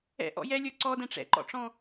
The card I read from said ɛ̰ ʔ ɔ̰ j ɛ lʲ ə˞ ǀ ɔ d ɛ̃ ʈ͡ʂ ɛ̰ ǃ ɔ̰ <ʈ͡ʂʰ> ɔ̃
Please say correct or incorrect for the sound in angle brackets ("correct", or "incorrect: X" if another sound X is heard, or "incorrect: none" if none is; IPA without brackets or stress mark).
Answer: incorrect: ʈ͡ʂ